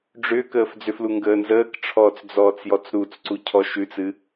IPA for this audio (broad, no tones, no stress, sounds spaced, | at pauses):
ɖ͡ʐ ʏː k əː f d͡z ʏ f l u ŋ ɡ əː n z əː k ʈ͡ʂʰ ɔː t͡s d͡z ɔː t͡s j ɔ t͡s ɾ u t͡s ǀ u cʰ ɔ ʃ ʉ t͡s ɨ